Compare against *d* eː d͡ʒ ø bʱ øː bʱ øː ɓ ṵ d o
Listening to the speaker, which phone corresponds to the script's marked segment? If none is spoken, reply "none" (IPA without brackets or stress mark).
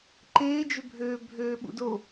ǃ